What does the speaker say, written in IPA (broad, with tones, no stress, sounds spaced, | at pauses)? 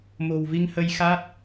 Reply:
m o̤˨˩ w v i˧ ŋ h ə˧ j x a˦˥ t̚